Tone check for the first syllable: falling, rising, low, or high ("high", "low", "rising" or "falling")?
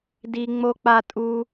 high